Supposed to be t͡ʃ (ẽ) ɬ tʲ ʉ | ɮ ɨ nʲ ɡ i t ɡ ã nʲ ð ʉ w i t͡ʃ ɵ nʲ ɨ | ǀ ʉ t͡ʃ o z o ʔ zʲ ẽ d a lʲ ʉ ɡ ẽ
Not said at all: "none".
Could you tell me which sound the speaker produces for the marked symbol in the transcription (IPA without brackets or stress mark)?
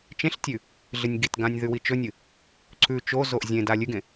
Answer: ẽ